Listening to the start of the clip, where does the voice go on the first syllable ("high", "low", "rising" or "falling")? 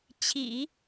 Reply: low